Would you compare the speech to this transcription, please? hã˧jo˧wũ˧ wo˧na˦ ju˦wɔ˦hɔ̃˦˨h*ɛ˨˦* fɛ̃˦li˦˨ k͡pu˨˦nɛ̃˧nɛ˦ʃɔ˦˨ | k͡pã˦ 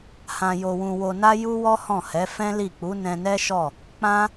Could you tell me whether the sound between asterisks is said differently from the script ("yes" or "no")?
no